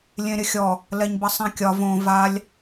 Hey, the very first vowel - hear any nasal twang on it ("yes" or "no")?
yes